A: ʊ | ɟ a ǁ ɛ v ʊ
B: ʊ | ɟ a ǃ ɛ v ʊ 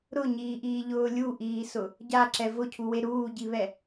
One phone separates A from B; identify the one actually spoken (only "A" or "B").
A